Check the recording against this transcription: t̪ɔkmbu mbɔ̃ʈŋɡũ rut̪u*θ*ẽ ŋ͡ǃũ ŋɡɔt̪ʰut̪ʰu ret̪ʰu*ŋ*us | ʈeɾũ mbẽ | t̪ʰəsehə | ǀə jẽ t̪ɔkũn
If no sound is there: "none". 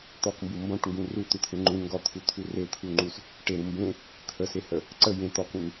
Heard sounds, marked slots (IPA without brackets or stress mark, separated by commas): t̪ʰ, ŋ͡ǃ